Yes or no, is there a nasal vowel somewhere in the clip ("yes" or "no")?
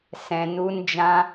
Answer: yes